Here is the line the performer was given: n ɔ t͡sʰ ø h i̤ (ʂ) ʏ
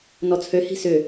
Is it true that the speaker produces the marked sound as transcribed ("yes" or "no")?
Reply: no